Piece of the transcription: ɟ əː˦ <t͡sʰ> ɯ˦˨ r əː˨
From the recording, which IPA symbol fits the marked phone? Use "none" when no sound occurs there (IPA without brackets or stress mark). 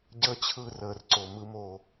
t͡ɕʰ